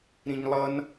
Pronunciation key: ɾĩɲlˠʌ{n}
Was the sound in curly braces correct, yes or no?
yes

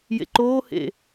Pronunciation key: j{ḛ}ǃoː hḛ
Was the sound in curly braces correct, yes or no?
yes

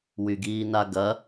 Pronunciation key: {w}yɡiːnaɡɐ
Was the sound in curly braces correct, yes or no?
yes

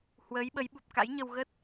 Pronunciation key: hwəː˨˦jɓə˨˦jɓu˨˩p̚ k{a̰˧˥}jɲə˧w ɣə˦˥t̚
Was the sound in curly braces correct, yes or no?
yes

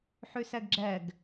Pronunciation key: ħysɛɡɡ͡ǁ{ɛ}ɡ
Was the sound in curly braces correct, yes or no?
yes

